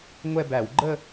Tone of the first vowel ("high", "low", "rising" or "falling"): falling